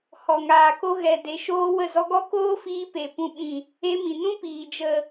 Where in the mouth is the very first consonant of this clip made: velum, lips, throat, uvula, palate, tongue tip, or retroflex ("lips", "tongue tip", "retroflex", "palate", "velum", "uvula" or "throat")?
throat